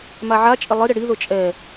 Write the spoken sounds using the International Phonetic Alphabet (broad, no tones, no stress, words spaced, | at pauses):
maʕat͡ʃʼɪ lˠɪ ɾɪɽiðʊ t͡ʃʼɛ